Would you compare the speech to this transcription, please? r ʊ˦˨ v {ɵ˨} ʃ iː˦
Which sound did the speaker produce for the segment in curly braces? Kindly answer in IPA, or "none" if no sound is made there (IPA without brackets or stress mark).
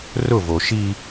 o˨